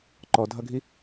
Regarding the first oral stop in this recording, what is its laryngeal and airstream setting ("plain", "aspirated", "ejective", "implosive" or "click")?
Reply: click